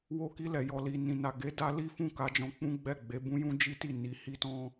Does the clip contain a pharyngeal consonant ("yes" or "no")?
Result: no